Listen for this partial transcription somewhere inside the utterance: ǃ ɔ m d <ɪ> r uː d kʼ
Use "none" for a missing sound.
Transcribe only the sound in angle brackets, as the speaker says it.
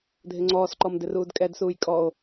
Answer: ɪ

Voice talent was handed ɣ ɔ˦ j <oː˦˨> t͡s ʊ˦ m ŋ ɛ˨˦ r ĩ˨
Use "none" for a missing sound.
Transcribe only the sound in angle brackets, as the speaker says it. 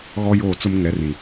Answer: oː˦˨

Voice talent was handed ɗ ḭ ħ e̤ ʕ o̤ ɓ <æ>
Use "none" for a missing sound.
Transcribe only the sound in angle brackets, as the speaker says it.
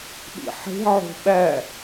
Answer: æ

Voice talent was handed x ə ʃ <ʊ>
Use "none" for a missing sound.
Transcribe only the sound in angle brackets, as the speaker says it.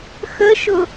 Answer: ʊ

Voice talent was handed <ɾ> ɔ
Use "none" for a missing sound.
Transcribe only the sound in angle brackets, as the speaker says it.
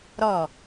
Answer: ɾ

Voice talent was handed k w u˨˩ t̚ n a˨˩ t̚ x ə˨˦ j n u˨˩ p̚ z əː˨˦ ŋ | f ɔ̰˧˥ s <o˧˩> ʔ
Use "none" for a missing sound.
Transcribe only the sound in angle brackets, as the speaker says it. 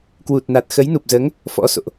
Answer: o̰˧˨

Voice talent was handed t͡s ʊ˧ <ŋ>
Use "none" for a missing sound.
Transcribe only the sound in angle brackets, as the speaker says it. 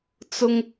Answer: ŋ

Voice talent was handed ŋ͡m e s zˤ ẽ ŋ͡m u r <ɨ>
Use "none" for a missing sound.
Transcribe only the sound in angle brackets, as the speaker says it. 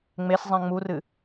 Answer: ɨ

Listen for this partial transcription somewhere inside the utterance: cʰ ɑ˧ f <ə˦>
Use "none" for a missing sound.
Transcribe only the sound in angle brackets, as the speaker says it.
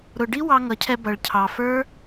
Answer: ə˞˦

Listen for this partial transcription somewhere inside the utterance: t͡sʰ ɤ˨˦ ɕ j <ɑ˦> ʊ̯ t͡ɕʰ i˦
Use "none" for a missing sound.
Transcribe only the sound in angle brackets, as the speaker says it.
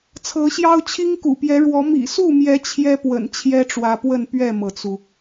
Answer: ɑ˦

